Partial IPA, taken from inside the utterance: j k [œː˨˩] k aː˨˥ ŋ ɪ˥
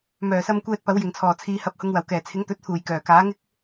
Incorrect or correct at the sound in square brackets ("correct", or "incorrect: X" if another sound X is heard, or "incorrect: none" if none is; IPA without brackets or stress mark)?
correct